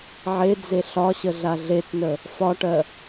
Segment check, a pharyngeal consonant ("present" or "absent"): present